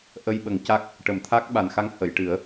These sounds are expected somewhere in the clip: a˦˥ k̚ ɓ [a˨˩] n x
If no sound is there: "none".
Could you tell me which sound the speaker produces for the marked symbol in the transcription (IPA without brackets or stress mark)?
a˨˩